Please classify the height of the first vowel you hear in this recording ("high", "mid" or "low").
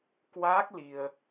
low